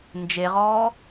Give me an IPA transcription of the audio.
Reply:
nd͡ʒeʁɔː

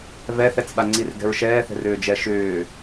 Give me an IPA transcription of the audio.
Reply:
vɛθɛt͡sɓaŋ͡ǀir ɡɛ̤ɹʃɛːθɛ̤rʏː d͡ʒɛʃʏː

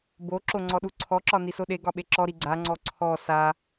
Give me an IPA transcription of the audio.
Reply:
boǁo ŋ͡ǀɔɗuǀʰɔǁɒ nisoɗeɡɒ ɓeǁɔɾi ɡ͡ǀaŋ͡ǀɔ ǀʰɔ sa

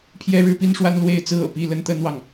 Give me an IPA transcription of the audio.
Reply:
pʰjɛ˦ɻɻ̩˦pi˦nʂwa˦n lwe˥˨ɪ̯ t͡sɹ̩˦ɤ̰˨˩ pi˥˨ lə˦n t̪ə˦nwɑ˨ŋ

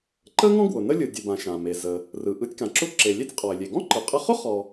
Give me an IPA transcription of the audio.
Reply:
ǃə˥ŋɔ̃˥ ɡwʊ˩ nə˥lʲɯ˩dʲɯ˩bã˩ ʃã˩me˩zə˩ | rɯ˩ ʔɯ˧tʲ kã˩ǁʊ˥ ǁe˩lʲe˥tʲ qʼɔ˩ɪ̯lʲe˩ ɡɔ̃˥ǃɯ˩qʼə˧χʊ˥ χɔ˩

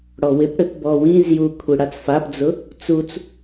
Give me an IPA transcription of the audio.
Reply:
ɽɔwɪpɽɪp bɔwĩzju kʷʰiɽat͡sfapd͡zʊ | t͡sut͡s

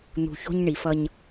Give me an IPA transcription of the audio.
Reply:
n̪ṳ˨ço̤˦ɲɳi˨fʌ˦ɲ

